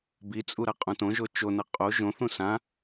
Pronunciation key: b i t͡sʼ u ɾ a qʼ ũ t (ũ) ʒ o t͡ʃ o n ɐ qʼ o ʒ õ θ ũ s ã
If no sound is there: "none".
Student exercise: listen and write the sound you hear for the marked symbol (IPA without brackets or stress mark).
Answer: õ